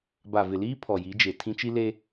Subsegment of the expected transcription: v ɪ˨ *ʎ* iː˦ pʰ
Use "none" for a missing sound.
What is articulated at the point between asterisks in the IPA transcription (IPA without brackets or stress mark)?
l